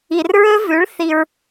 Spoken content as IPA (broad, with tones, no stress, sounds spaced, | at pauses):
i˨ r ɹ ɵ˦ v ʉ˨˦ ɭ θ i˧ ɹ